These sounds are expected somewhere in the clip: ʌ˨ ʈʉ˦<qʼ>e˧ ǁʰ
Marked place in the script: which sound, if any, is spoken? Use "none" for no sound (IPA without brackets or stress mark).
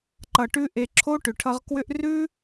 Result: ʔ